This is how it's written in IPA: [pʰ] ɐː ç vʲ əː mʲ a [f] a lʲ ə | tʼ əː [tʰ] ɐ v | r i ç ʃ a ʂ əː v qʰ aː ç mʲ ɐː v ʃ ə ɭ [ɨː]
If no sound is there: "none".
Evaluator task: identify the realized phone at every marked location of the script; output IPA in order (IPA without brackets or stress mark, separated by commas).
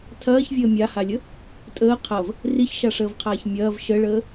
tʰ, h, qʰ, əː